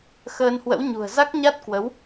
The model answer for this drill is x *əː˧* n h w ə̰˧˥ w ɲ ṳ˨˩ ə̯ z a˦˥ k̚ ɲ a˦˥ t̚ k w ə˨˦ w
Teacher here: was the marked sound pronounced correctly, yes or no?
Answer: yes